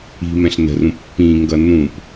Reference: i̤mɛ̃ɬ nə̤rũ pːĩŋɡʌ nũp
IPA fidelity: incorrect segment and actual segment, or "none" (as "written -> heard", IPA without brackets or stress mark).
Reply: none